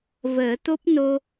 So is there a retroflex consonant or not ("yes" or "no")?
no